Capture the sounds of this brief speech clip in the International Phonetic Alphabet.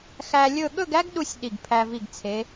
xæ˧lʲɵ˥˧ ɠɵ˥˧ɡæ˥ɡɗu˧sʲ ɗi˧˩ɡpʰæ˧ vi˧˩ɡt͡sʰe˩˧

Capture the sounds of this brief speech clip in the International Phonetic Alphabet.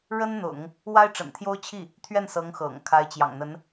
ɻə˥nn̪ʊ̰˨˩˦ŋ | wa˥ɪ̯ʈ͡ʂə̰˨˩nt̪ʰjo˥ʊ̯t͡ɕʰi˥˩ | t̪ʰɥɛ˥˩nsɤ˧˥ŋxɤ̰˨˩ŋ kʰa˧˥ɪ̯t͡ɕjɑ̰˨˩ŋn̪ə˧˥n

